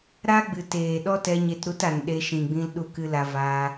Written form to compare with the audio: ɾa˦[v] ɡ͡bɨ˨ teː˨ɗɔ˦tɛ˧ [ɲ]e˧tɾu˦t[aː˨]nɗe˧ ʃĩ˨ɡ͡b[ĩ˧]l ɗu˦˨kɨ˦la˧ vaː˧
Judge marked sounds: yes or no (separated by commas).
no, yes, no, yes